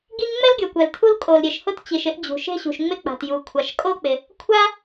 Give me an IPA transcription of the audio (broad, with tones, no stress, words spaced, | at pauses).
ɡi˥ŋ ŋ͡mɛ˥lɡʲo˩ kʷɛ˩ltʰu˥l kʼo˩l ɾʲe˩ʃhʊ˥t t͡ɕi˩ʃɪ˥ʔd͡ʑṳ˩ ʃe̤˥ɕṳ˩ʃŋ͡mɪ˥ k͡pa̤˩tju˩ kʷʰa˩ʃkʼo˥k͡pɪ˩ | kʷʰa˥